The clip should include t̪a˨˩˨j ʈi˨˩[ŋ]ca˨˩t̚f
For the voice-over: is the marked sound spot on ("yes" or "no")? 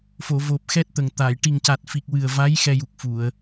yes